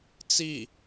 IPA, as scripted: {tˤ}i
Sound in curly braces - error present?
yes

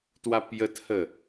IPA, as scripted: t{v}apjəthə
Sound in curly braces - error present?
yes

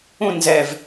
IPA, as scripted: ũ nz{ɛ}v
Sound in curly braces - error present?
no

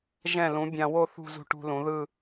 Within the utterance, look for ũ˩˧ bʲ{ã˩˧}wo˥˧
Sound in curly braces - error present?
yes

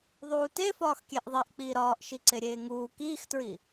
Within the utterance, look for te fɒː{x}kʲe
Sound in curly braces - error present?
no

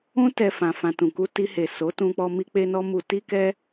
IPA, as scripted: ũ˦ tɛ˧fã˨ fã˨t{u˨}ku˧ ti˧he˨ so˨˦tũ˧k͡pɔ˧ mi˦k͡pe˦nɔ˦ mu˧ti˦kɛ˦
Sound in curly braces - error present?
yes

